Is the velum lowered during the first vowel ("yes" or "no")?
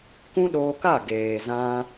yes